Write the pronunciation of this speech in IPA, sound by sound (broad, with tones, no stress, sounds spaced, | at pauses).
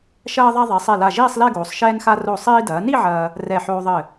ʃ ɐː˧ ðˤ a˧ ðˤ ɛ˩˧ sˤ e˧˩ l a˧˩ ʒ iː˥˧ sˤ l ɛ˥˧ ɡ oː˩˧ sˤ ʃ ɛː˧ n x a˧ r o˧˩ sˤ iː˧ d ɐː˩˧ n i˥˧ ʕ ɐː˧ | r ɛ˧˩ ħ oː˧ ðˤ ɘ˧˩